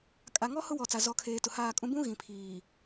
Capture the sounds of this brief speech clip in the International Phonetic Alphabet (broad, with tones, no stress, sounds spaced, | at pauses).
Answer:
kʼ a˨ ŋ ɔ˦ h ʊ˦ w ɔ˨ t͡s a˨ z ɔ˨˦ kʰ eː˨ t ʊ˨ h aː˦˨ kʼ ũ˦ b ũ˦ ɣ ĩ˨ pʰ iː˨